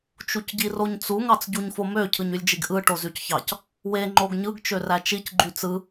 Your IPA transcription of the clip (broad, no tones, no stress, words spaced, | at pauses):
t͡ʃucɟiroɲt͡su ŋɑt͡sɟuɲfomø cʰɯɲylʲd͡ʒiɡʔɯ ʈozycçɑc | we ŋ͡ǃoɡɲɯɡ t͡ʃøræt͡ʃic ɡ͡ǃyt͡sɯ